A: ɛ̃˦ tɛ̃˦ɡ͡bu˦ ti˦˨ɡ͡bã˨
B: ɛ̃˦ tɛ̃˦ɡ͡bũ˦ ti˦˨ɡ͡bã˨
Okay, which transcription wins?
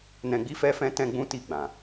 B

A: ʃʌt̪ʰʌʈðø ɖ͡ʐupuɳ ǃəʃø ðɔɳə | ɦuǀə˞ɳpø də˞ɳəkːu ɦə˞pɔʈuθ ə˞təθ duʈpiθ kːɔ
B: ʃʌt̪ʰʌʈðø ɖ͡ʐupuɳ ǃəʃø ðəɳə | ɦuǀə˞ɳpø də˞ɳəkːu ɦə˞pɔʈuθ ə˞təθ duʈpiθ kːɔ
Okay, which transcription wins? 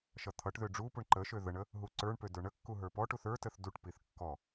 B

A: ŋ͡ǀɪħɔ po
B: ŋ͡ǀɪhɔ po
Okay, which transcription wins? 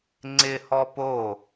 B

